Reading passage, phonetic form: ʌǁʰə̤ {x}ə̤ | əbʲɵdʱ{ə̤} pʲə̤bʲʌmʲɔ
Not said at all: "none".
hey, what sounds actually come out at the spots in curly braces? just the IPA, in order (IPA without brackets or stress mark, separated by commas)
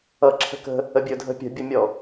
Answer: k, ə̤